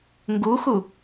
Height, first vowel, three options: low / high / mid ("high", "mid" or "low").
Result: high